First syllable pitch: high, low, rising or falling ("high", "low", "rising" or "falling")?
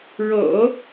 low